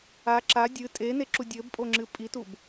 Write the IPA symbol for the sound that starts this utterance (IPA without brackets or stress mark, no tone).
a